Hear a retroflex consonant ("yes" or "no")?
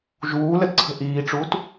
yes